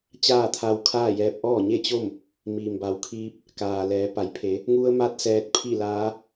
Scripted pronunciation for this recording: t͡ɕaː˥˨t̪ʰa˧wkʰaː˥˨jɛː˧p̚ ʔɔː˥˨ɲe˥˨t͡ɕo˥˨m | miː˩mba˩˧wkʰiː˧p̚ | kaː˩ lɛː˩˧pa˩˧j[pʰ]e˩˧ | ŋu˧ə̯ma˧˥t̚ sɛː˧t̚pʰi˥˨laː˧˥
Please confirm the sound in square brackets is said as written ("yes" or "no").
yes